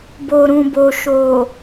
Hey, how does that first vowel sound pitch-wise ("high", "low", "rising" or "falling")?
low